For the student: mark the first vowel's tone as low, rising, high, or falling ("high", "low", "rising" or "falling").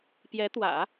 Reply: rising